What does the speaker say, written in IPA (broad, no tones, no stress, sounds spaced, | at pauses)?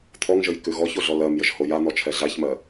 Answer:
t̪ʰ ɔ ŋ ʒ ə j k ʉ ɣ ɔ ç o ɮ ɔ l ɜ m j ə ʒ h o j a n̪ ɔ t͡ʃʰ ɛ ɮ a ç m ɜ